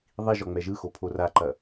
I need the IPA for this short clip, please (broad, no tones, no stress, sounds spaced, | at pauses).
ðˤ i ʒ ɔ ŋ͡m ɛ ʒ ɯ x o pʰ o r a ǃ ɐ